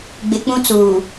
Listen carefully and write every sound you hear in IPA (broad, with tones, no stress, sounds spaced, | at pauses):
ɡ͡b ɪ˨ k͡p ũ˦ t͡s uː˨